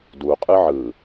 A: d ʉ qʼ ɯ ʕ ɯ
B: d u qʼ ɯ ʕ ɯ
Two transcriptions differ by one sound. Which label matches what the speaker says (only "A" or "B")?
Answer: B